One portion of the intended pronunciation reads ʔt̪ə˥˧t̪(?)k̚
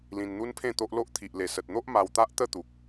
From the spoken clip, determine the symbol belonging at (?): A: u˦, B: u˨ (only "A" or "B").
B